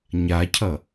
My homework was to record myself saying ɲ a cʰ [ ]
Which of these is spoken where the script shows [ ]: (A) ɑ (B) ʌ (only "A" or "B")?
B